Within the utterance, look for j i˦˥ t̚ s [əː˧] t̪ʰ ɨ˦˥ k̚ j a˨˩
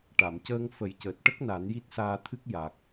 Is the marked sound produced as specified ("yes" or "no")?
no